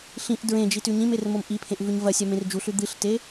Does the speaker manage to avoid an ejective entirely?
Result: yes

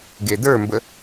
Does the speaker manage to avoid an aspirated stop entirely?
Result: yes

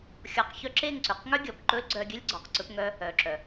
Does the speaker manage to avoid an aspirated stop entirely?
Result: yes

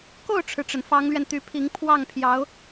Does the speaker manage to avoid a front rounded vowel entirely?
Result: no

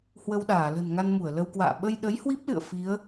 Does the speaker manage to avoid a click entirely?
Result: yes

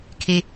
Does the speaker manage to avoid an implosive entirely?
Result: yes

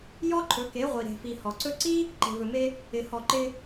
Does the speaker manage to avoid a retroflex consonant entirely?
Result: yes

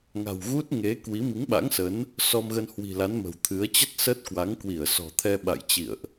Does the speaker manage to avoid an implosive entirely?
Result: no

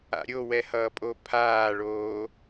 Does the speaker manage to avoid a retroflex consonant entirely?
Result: no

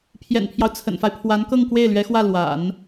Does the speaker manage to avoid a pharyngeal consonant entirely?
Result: yes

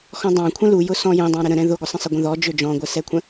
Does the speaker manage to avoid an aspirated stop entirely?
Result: no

